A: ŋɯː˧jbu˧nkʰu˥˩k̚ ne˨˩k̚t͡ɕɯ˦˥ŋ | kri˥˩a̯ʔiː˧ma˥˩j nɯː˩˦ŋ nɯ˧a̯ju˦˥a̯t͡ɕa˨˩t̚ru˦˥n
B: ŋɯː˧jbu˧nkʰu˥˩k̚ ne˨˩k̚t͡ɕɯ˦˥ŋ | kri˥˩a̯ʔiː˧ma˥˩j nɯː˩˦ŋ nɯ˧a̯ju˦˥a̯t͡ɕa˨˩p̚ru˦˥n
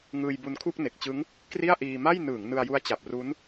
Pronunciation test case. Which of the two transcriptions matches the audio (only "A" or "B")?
B